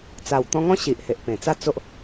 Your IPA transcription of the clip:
t͡sa˨˩wt̪ɔ̃˧ŋɔ̃˦ ɕi˨ʔhe˨ʔpẽ˨˩t͡sa˥˧ t͡so˦ʔ

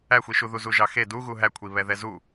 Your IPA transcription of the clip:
æxʷiʃu ðuzuʒɑxe duɣu ɦækʷʰi βɛðɛzu

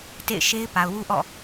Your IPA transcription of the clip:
tḛ˦˨ɪ̯ʃe˦ɪ̯ pa˨ʊ̯ wu˦ʔɔ̰˦˨

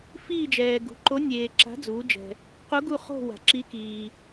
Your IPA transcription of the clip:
fiː˦˨d͡ʒɛː˩ɡṳ˩˧ ǃo˨˥nʲeː˩ ǁa̤˨˥d͡zuː˩˧d͡ʒɛ̤˩ | qu˨˥ɡu˦˨χo̤˦˨ wa̤˩ǁi˨˥ kiː˩

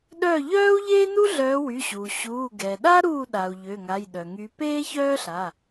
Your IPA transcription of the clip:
ɗœ˥˩ ʎœː˥u̯ʎeː˥nu˥ ɮœː˨˦wy˩˧˩ɕuː˩ ɕuː˩˧˩ ɡɛ˩ɗa˥ ɾuː˥˩ɗa˩u̯ ʎø˩˧˩ŋa˩˧˩j ɗœ˩ŋy˨˦ peː˥çœː˥ɬa˩˧˩

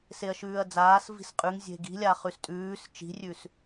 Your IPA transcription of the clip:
seɐ̯ʃʉːɐ̯d͡zaːs vi̤sqʼʉŋ zʲe̤ɡi̤lʲa χʉstʼʉːs t͡ʃi̤rʲʉs

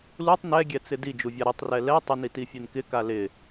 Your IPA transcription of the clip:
lutˤ nɛɡʲɛt͡sɪ did͡ʒuvʲa ɾɪtˤrɛ lɛ tˤɪnitifʲen kɪka lɪ

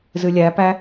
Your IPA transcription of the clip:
zɨlʲæpæ

